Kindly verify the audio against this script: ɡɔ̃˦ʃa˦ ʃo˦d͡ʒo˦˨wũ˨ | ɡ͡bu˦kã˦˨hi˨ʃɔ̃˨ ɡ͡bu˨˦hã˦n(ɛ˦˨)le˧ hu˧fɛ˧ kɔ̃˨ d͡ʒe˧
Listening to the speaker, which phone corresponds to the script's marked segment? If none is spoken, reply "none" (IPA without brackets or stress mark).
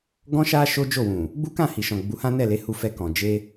ɛ˦˨